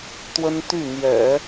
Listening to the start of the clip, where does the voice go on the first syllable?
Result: high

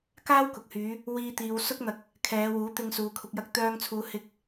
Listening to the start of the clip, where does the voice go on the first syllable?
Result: high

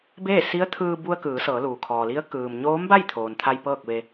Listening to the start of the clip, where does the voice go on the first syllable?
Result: falling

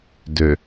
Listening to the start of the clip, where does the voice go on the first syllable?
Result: low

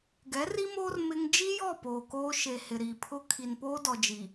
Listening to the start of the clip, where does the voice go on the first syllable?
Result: rising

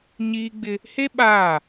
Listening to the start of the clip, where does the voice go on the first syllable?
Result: high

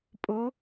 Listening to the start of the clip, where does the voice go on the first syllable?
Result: rising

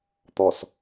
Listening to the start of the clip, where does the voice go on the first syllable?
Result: low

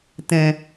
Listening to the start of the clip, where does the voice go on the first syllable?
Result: low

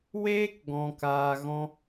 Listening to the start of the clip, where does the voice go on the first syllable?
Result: high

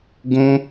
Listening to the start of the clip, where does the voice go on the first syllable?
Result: high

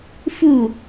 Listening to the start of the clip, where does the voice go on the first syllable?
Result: falling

